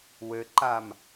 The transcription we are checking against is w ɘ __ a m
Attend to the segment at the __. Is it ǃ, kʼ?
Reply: ǃ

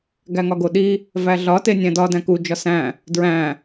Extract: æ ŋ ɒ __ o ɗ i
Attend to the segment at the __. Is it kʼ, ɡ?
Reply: ɡ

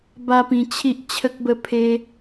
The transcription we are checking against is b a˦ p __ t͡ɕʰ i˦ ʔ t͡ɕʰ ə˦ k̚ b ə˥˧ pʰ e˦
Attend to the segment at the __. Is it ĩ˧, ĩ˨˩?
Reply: ĩ˧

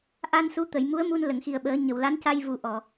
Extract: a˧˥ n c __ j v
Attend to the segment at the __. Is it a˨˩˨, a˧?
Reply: a˧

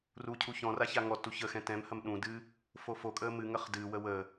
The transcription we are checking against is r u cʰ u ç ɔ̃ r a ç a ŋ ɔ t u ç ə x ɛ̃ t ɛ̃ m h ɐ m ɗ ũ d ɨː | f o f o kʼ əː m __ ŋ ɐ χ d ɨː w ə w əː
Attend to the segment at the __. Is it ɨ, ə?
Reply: ɨ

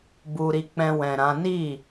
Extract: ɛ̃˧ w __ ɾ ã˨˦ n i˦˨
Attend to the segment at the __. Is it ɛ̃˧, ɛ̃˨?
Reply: ɛ̃˨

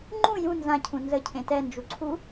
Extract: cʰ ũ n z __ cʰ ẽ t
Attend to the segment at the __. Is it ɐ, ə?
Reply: ə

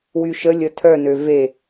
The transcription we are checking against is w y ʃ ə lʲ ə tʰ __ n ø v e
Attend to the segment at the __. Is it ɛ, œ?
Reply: œ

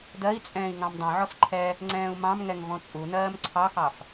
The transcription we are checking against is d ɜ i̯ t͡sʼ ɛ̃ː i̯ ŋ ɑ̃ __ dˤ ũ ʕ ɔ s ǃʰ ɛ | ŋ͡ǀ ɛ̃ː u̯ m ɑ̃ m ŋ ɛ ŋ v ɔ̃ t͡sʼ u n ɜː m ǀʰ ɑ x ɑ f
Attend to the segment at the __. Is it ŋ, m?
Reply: m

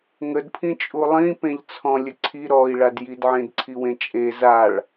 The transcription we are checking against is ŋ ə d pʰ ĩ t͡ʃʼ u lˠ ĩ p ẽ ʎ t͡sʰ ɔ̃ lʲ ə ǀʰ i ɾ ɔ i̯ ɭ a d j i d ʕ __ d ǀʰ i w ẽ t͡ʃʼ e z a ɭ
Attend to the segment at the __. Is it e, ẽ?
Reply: ẽ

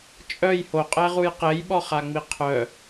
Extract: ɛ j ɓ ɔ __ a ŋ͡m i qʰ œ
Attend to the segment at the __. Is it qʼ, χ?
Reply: χ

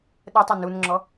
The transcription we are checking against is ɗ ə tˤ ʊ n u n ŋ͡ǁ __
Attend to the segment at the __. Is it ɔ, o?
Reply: ɔ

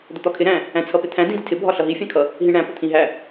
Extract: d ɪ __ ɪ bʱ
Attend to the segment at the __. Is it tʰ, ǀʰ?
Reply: tʰ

